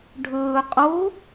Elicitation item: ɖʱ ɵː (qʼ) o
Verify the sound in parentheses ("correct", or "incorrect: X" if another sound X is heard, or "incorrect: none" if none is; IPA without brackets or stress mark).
correct